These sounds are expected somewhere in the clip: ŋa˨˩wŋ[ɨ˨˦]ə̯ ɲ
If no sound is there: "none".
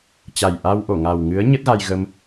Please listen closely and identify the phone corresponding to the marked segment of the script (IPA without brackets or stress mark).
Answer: ɨ˨˦